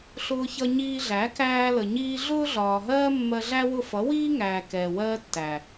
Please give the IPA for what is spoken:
ɬ ʊː˧ ç ʌ˧ ɲ iː˧ ɮ æ˨˦ k æː˧ l ə˨ ɲ iː˧ ɮ ʊː˦ ɮ ɒː˨ ɦ ɜː˦ mː ɜ˧ ɮ æ˦ w ʊ˦˨ f ʌ˨˦ w iː˦ ŋ æː˨ k ɛː˨ w ɜː˦ tː æ˨

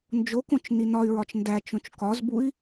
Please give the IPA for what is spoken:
n d͡ʒ o k õ t͡ʃ n i n ɒ y̯ ɹ ɒ t͡ʃ n d æ t͡ʃ õ t͡ʃ k ɒ z b u i̯

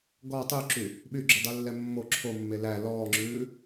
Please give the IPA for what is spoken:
ɡ ɔ tˤ y ǁ y | ɓ y ɡ͡ǁ o dˤ ʉ lː ɛ mː o ǁʰ o mː e l æ l ɔː ŋ͡ǁ ʉː

